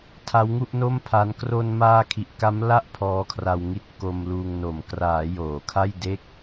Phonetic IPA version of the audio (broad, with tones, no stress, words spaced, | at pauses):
tʰa˦˥wŋu˥˩ʔno˥˩mpʰa˦˥n kro˧nmaː˧ kʰi˨˩ʔka˦˥mla˥˩ʔ pʰɔː˦˥kʰra˧w ŋi˦˥t̚ko˧mluː˧ŋno˨˩m kraː˩˦ joː˩˦kʰa˥˩jde˥˩k̚